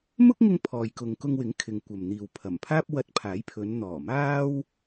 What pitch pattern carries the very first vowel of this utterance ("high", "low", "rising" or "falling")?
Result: high